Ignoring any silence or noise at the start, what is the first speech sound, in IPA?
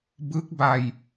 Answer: b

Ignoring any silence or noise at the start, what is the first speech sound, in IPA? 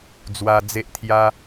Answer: d͡z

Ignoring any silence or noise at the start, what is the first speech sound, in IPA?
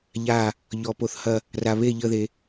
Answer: ʎ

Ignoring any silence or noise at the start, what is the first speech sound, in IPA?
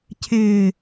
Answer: cʰ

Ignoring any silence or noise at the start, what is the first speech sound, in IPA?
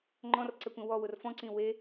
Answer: ŋ͡ǃ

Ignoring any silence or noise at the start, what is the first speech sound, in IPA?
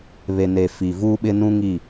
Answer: β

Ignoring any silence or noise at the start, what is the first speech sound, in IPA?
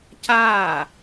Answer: c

